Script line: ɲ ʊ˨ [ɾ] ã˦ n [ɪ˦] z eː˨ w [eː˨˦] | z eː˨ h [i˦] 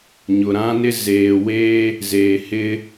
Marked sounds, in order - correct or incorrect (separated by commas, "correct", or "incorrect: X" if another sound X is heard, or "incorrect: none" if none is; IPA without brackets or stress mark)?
correct, correct, incorrect: eː˦, incorrect: ɪ˦